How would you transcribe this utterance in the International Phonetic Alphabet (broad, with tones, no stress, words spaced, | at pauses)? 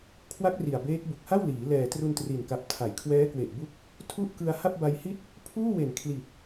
kʰwa˦˥k̚ ri˨˩a̯beː˦˥k̚ bu˨˩k̚ha˥˩wliː˩˦ lɛː˨˩tru˧n tri˨˩nka˨˩p̚ tʰa˩˦jkʰwɛː˦˥kwe˨˩ʔbu˦˥k̚ | tʰu˥˩ʔkɯ˧a̯ ha˥˩p̚ba˧jhi˥˩t̚ | pʰuː˥˩we˨˩n kʰli˨˩t̚